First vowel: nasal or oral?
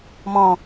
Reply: nasal